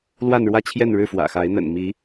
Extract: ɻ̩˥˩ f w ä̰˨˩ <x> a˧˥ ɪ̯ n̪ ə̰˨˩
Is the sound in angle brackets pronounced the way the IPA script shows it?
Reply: yes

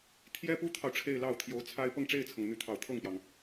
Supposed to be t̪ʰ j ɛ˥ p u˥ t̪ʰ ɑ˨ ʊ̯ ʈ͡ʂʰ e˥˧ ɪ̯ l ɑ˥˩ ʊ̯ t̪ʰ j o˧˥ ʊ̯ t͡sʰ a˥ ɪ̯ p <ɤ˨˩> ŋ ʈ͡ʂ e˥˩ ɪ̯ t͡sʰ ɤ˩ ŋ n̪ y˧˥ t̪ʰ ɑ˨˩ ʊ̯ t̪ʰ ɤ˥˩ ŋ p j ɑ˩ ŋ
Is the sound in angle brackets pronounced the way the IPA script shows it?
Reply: no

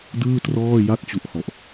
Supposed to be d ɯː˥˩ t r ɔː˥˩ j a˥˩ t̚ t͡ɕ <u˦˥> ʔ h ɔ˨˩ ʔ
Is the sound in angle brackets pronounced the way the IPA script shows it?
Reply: yes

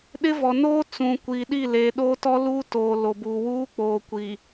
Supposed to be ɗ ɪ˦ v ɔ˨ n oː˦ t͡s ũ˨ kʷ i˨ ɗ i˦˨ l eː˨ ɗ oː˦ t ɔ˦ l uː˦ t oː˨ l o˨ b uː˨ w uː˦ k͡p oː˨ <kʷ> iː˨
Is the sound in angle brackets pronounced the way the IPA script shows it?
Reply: yes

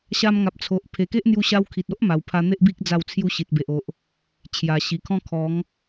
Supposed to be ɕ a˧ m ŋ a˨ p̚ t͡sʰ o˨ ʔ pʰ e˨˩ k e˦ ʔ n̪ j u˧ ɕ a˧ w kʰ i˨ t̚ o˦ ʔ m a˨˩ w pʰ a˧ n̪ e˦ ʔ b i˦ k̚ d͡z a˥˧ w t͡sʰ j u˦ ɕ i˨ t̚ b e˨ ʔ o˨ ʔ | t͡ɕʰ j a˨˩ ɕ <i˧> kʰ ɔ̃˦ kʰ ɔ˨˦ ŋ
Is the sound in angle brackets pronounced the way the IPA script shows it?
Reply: no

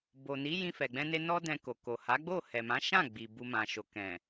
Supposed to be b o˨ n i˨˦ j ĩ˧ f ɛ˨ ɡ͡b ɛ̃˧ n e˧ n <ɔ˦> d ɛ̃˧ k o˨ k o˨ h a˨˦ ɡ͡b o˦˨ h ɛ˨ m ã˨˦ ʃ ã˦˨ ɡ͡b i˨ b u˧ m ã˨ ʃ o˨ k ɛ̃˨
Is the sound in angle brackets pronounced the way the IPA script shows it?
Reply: yes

